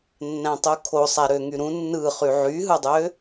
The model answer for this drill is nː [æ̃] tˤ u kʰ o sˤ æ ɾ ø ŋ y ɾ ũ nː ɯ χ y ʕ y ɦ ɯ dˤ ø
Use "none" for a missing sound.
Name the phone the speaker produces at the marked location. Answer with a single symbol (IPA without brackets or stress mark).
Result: æ̃